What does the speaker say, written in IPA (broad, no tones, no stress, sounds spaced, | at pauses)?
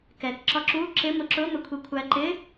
k ɛ k ǁ ɒ ǁ u ǁ ɪ m ʊ ǁ ʊ m ə kʷʰ i kʷʰ æ ǃ ɪ